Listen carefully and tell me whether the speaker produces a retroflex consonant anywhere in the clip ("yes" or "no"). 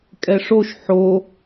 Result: yes